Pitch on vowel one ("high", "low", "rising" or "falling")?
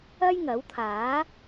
high